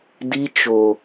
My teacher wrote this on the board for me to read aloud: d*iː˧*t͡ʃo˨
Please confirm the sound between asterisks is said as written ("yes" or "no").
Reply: no